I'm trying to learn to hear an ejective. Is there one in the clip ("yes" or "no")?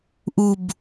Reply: no